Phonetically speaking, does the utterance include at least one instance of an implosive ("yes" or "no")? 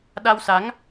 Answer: yes